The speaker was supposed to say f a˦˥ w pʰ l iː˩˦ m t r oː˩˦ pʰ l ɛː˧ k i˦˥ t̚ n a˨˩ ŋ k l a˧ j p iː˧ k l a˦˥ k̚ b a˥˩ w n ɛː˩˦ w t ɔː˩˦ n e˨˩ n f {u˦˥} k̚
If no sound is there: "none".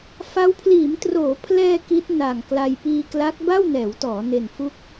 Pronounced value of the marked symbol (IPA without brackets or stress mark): u˦˥